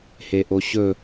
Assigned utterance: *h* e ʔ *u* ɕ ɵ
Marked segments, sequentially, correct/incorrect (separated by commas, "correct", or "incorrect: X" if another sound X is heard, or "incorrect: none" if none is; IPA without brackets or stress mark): correct, incorrect: o